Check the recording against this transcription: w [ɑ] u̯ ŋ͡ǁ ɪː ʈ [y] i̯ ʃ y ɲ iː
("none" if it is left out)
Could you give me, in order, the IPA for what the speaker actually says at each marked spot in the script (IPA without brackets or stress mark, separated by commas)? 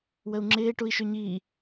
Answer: ə, u